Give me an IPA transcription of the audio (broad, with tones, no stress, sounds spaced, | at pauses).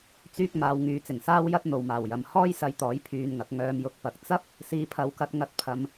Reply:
t͡s yː˧ k̚ m aː˨˧ w ŋ yː˨ t͡s ɪ˨˩ ŋ s aː˥ w j ɐ˥ t̚ n̪ o˨ w m aː˨˩ w j ɐ˨ m h ɔː˥ j s ɐ˧ j t̪ ɔː˨˥ j pʰ yː˧ n ŋ ɐ˨˥ k̚ ŋ œː˨ m j ʊ˨ k̚ p ɐ˨ k̚ t͡s ɐ˥ p̚ | s iː˨˧ pʰ ɐ˨˥ w k ɐ˨˥ t̚ ŋ ɐ˧ t̚ pʰ ɐ˨ m